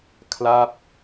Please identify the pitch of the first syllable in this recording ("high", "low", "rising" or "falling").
falling